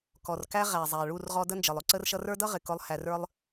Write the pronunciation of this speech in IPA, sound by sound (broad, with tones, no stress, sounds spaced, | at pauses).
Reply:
k ɔ˨ r k æ˧ ʁ æ˨ zˤ æ˨ ɭ u˦˨ r ʁ ɔ˧ d ə˦ n d͡ʒ ə˨ lˠ ʊ˧ ǀ ə˧ r ʃ ʌ˧ r ə˞˦ d ʌ˦ ʁ ɪ˨ k ʊ˧ lˠ h æ˨ r ə˞˧ lˠ